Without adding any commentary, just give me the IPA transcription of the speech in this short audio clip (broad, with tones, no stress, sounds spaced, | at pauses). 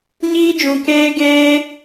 ɲ iː˦ d͡ʒ ũ˧ k eː˦ ɡ eː˦